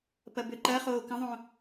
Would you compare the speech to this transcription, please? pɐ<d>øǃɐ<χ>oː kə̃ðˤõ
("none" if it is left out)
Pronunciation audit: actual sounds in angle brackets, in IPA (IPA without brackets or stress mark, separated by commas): b, χ